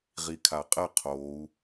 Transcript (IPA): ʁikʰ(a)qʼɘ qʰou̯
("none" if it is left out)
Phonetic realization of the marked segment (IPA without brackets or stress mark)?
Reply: a